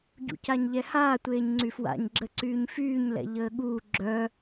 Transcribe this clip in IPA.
ɟ ṵ c a ɲ ʎ ɛ h aː tʷ eː ɲ ŋ͡ǀ y f w a̰ ɲ ɡ͡ǁ ə ǀ yː ɲ f yː ɲ l ɛ̰ ʎ əː ɠ uː ɡ͡ǁ œ

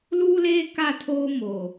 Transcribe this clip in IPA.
l uː˦ l eː˦ k a˦˨ tʰ oː˦ m oː˨

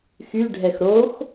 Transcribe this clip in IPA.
x y ɖʱ ɛ x ɾ o x

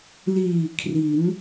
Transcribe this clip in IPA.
l iː˨˩ kʰ r i˩˦ n

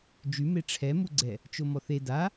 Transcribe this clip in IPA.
d͡ʒ y m e ʈ͡ʂʰ ɛ m u ɡ͡ǀ ɛ | t͡ʃ o m ɔ θ e d a

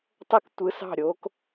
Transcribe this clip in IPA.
tˤ ə˥˧ k tʷ ɯ˨˥ s ɑ̤˥˩ ɾʲ o˨˥ k

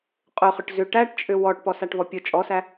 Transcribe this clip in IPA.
qʼ ʊ χ ʏ ʈ z ʏ ʈ æ ʈ t͡ʃʼ ʏ w ɔ ʈ p ɔ s a ʈ v ɔ pʲ ʊ t͡ʃʼ ɔ s æ

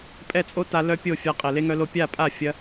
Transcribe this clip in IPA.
pʼ ɛ˦˨ t͡sʼ o˦ t a˧ l œ˦ pʲ o˦˨ fʲ a˧ qʼ e˨ l e˦ ŋ œ˦ l o˦ pʲ a˦˨ pʼ a˦˨ fʲ ɐ˦

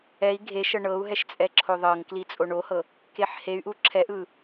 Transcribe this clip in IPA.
ɛ i̯ ɡʱ e ʃ ɤ ɳ ɤ u̯ ɦ ɛ ʃ t͡sʼ ɛ ǁʰ o ðˤ ɤ ŋ k l i t͡sʼ o ɳ o h ɤ | k e ħ h e y̯ ʔ u ǁʰ ɛ ʔ ɯ

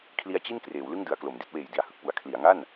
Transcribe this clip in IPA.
kʰ l i˦˥ a̯ t͡ɕ i˥˩ n k r eː˩˦ w l ɯ˥˩ ŋ d ɯ˩˦ a̯ k l o˩˦ m d i˦˥ t̚ w eː˨˩ j d i˨˩ a̯ h ɯ˨˩ k̚ p u˩˦ a̯ kʰ l i˩˦ a̯ ŋ a˥˩ n

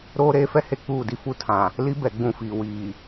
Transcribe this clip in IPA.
ɾ oː˦ ɾ eː˦ f ɛ˦ h e˨ k͡p uː˦˨ d i˦ f u˦ tʰ ã˨ | l i˦ b ɛ˨ ɡ͡b ũ˦˨ f iː˨ w iː˨

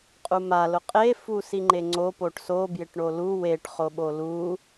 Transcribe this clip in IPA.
qʼ u m a l ʊ qʼ e f u s i ŋ͡ǃ e ŋ͡ǀ o p o ʈ s o b j ɪ ʈ ɳ o l u w e ʈ χ o ɓ o l u

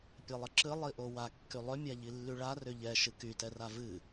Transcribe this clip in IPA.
pʲ ɛ lˠ ə ǁ ɨ lˠ i ʔ o w a kː y lˠ ʏ mʲ a ʎ i lː y ɭ a r ʏ ʎ ɛ ʃ ɨ k y t ɛ r a v ɨ

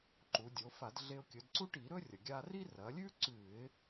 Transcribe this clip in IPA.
ǃ u˩˧ dʲ o˩˧ f a˧˩˧ d ɮ e˧ ʊ̯ kʲ ɵ˩˧ d ǀ u˥ ʈ i˧˩˧ ɾ ɵ˥ rʲ ɐ˩ ɡʲ a˧ r i˥ r ɐ˩˧ lʲ ʉ˥ ǀ ʉ˧˩˧ ɪ̯

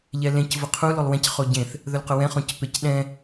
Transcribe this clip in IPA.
ʎ ɛ l ẽ c v ʊ qʰ u l o lˠ w ɛ̃ c χ o ɟ ẽ θ | ð ɵ l q ʊ w ɛ̃ χ õ c p e c ɗ ɛ̃

